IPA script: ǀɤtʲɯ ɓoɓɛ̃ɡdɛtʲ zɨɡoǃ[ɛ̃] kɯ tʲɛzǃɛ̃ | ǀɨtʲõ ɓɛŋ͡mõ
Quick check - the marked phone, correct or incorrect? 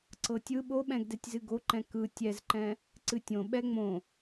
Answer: correct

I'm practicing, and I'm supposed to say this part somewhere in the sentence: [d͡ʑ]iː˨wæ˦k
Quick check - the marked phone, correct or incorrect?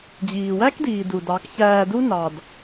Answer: correct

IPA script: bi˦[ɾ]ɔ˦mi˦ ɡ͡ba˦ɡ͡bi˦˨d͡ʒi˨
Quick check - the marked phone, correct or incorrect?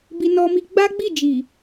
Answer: incorrect: n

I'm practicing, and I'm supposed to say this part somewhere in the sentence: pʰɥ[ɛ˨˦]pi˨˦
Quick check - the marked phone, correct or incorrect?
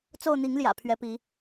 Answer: correct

